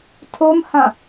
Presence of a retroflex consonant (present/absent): absent